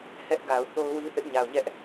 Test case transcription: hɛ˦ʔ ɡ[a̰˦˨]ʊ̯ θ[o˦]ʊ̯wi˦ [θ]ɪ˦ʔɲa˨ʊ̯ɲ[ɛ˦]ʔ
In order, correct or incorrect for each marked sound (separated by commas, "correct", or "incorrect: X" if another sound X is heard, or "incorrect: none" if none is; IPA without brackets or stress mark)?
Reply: incorrect: a˨, correct, correct, correct